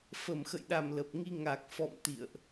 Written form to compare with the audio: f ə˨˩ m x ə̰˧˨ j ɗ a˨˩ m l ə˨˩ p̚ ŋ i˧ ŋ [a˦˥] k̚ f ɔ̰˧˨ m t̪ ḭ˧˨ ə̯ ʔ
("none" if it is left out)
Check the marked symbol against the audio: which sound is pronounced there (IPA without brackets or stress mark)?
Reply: a˨˩